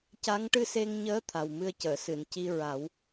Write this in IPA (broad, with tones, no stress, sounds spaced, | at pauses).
c a˧˥ ŋ ʈ ɨ˧ s e˧ ŋ ɲ əː˧˥ t̪ʰ a˨˩ w m ɨ˧ ə̯ c əː˨˩˨ s ɨ˨˩˨ n c i˧ ɹ a˨˩˦ w